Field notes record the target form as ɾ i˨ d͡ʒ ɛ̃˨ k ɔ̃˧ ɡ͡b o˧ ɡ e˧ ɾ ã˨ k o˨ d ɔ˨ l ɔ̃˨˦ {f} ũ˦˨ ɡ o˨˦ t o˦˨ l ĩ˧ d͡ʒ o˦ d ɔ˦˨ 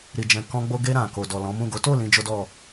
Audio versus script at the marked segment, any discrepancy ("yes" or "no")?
yes